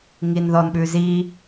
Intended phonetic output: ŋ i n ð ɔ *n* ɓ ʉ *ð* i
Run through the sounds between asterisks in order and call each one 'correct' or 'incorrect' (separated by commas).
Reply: correct, incorrect